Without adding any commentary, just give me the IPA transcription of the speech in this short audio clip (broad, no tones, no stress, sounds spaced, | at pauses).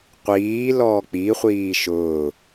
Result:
qʷ iː l ɔː k͡p i χʷ iː ʃ ʊː